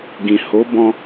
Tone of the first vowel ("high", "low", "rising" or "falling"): low